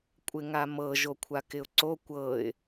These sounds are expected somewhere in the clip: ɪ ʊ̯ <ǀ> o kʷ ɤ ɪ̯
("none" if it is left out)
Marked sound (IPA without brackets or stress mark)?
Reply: ǀ